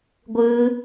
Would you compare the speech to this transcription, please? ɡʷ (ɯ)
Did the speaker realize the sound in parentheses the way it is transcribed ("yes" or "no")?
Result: yes